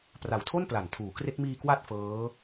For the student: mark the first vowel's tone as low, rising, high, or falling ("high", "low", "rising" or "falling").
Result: low